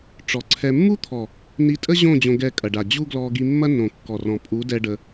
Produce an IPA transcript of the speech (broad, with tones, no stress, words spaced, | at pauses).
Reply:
ʈ͡ʂɔ˨ǀʰɛ˧ mːu˦t̪ʰɔ˨ | ni˧tʼə˦ʑõ˦˨ d͡ʑõ˧ɡɛ˧kʼɐ˨ ɖa˨ d͡ʑu˦ɡlɔ˧ɡi˧ mːɐ˦nõ˨ kːɔ˨rɔ̃˨ pʼu˨˦dɛ˧ ɖə˧